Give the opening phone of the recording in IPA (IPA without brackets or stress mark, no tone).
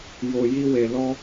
j